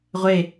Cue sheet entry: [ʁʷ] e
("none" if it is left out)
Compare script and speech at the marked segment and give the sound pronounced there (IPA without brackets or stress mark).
ʁʷ